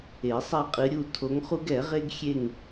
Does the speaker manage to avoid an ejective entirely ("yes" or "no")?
no